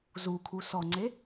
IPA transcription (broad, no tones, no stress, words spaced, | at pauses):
zukʰu sɔŋ͡ǀe